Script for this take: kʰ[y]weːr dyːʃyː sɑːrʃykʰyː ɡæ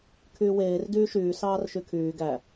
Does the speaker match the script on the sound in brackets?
no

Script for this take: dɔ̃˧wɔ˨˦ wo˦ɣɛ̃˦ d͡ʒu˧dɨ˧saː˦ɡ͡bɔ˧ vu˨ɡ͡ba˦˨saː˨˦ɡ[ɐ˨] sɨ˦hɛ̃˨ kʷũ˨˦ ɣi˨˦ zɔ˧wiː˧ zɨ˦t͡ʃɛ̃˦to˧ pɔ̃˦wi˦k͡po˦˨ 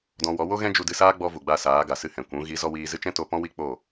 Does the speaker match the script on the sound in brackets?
no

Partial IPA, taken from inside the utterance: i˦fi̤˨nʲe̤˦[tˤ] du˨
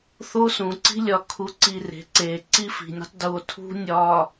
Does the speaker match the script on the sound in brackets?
yes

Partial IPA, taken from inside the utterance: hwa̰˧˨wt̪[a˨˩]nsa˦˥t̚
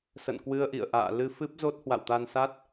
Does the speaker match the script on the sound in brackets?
no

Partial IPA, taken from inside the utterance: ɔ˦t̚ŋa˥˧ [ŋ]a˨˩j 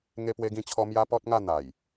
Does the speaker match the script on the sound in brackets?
no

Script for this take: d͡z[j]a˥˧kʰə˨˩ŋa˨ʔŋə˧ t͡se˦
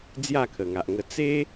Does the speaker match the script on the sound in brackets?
yes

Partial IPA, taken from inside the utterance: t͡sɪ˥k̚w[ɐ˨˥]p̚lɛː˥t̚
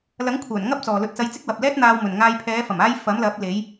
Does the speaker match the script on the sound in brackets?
no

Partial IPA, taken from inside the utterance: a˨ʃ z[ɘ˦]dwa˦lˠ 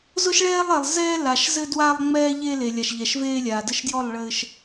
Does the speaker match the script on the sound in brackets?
yes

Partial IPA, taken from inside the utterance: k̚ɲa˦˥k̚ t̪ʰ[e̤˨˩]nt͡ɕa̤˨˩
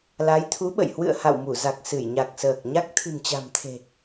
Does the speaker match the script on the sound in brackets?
no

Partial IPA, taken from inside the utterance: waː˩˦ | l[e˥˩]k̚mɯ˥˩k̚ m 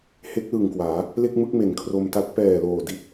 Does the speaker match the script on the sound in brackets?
yes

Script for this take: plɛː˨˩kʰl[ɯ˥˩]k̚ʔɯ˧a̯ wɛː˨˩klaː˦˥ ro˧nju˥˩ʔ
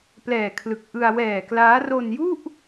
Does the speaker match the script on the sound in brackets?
no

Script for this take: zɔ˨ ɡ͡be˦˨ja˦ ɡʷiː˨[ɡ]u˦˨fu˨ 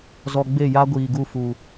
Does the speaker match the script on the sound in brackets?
yes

